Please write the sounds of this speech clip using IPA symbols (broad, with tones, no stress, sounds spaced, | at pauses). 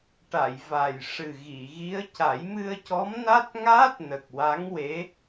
ʈ a˨˩˨ j v a˨˩ j ʂ ɨ˨˩ ɣ i˨˩˨ ɣ i˧˥ ə̯ c a˨˩˦ j m ɨ˧ ə̯ c ɔ˧˥ m n a˦˥ t̚ ŋ aː˦˥ t̚ n ə˨˩ k̚ w a˧˥ ŋ w e˧˥